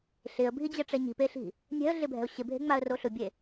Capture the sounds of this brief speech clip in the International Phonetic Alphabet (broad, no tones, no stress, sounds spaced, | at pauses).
ɬ ɪ ə̯ bʱ i d͡ʑ ɛ ʈ͡ʂ ɛ ɲ i̤ p e ɬ i̤ | nʲ ɛ̤ ə̯ ɮ ɪ bʱ ɛ̤ ʊ̯ ɕ ɪ bʱ e̤ ŋ͡m a ə̯ r o ɬ ʊ bʲ e